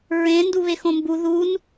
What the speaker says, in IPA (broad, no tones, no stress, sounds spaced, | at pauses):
ɹ ẽ n d u β e x õ m b u ð u n